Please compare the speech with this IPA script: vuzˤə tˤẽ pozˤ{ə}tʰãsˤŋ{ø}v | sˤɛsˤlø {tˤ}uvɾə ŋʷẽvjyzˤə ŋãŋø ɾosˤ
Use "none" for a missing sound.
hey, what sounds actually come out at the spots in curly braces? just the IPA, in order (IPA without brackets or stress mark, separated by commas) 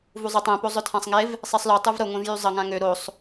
œ, e, tˤ